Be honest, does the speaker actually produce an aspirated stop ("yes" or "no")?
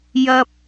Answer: no